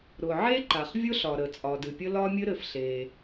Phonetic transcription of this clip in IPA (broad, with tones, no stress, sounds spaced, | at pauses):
ɾ ʊ˩ ʕ e˥ ǃ a˩ χ vʲ ʊ˥ ɬ ɒ˩ ɾ ə˩ t͡sʼ ɒ˩ d ɨ˩ pʲ ə˥ l ɒ˥ mʲ ɘ˥ ɾ ɘ˩ f ɬ e˩